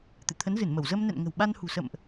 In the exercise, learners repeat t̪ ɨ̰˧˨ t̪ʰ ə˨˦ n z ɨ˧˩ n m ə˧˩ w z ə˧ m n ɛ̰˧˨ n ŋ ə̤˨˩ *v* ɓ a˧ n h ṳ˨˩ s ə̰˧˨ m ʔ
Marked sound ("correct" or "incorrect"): incorrect